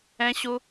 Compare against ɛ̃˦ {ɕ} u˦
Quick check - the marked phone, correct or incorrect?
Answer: correct